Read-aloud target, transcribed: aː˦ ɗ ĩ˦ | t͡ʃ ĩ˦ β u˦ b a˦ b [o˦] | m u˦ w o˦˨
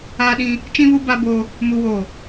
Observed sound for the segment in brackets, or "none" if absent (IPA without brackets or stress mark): o˦